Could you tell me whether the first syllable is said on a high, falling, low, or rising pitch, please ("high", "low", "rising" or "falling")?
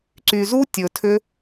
low